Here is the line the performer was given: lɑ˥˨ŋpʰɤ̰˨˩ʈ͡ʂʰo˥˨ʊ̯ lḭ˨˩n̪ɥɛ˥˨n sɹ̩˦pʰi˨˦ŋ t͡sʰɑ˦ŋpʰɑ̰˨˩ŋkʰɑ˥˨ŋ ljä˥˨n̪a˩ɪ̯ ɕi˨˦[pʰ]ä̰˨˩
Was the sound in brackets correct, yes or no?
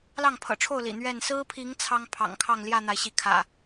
no